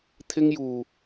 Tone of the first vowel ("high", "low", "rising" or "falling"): high